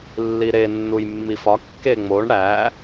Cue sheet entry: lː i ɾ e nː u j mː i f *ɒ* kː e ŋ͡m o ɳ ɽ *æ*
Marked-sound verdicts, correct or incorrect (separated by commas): correct, correct